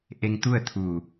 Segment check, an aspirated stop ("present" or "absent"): present